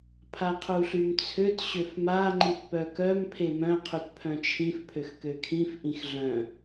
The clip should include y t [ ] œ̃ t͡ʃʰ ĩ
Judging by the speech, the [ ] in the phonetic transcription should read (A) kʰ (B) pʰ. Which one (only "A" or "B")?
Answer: B